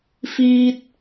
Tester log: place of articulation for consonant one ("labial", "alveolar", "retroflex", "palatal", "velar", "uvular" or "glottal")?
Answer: labial